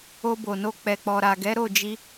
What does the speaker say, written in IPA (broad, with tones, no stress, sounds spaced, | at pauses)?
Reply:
o˧ b o˨ n o˧ k͡p ɛ˨ k͡p ɔ˨ ɾ a˨ ɡ ɛ˨˦ ɾ o˦˨ d͡ʒ i˧